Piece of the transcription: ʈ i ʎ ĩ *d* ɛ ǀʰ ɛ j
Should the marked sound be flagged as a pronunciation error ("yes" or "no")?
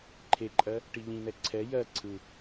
yes